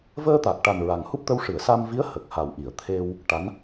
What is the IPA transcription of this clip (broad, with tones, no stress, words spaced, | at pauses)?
vəː˧t̪a˨˩k̚ʈa˨˩n ɹa˨˩ŋhu˦˥p̚t̪ə˧w ʂɨ˨˩˨ə̯sa˧mvi˧˥ə̯ hə˨˩k̚ha˨˩wʔi˨˩˨ə̯ t̪ʰe˧w | ʈa˧˥n